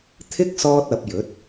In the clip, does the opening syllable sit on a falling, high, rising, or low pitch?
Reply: high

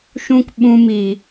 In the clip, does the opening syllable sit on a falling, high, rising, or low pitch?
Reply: high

